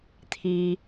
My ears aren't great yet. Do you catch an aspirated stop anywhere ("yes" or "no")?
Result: yes